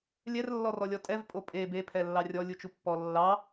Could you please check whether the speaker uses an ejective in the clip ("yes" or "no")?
yes